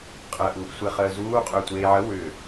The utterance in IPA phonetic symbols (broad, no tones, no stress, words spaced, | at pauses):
qʼəːʔ uːʔsʷeχəːzuː qʼʏːtʷeːʕə wʏː